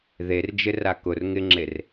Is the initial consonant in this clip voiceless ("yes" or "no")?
no